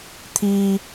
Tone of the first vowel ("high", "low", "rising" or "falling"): low